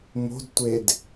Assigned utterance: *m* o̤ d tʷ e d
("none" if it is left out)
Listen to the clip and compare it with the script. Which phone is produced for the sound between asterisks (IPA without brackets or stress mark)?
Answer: m